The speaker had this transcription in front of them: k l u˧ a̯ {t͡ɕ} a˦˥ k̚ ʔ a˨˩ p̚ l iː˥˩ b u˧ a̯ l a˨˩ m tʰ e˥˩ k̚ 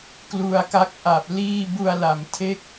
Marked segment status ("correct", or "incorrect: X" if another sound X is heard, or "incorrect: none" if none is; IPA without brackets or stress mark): incorrect: k